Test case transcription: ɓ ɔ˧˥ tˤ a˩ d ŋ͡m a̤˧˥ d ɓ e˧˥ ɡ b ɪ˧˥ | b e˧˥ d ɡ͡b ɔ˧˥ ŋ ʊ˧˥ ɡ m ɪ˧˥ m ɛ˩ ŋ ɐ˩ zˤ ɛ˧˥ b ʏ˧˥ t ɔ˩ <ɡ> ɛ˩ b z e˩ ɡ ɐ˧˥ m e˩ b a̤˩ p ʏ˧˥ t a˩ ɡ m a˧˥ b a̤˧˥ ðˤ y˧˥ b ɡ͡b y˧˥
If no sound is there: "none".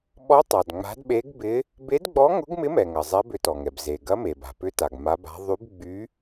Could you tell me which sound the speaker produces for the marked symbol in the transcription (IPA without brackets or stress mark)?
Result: ŋ